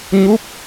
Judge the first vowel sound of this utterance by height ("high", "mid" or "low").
high